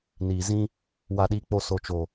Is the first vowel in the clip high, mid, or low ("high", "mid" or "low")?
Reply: high